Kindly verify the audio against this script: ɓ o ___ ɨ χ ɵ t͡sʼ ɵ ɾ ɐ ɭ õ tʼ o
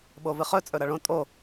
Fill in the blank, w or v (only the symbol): v